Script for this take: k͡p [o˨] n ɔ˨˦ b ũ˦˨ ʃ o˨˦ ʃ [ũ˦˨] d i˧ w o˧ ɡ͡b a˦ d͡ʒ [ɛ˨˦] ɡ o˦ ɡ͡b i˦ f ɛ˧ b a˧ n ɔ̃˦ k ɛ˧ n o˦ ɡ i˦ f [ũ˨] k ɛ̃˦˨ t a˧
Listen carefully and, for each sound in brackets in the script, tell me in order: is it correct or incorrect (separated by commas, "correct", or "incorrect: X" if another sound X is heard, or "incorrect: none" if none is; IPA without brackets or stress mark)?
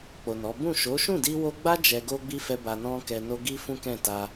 correct, correct, incorrect: ɛ˧, incorrect: ũ˦